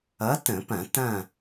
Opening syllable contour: rising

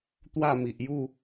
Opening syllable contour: falling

